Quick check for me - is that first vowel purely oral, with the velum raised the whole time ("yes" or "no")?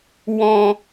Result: no